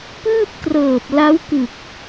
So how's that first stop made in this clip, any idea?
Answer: plain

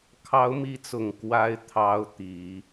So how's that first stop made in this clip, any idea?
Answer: aspirated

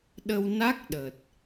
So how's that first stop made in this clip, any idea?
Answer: implosive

